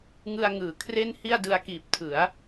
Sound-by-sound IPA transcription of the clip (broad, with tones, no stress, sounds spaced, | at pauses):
ŋ ɯ˧ a̯ ŋ ɯː˩˦ kʰ r e˥˩ n h i˥˩ a̯ d ɯ˧ a̯ k iː˨˩ p̚ tʰ ɯ˩˦ a̯